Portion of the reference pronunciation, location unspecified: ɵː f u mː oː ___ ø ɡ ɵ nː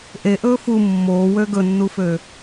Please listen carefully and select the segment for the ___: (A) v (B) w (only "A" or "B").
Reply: B